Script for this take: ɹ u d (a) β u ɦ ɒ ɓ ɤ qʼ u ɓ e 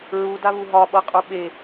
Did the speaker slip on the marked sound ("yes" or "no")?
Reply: no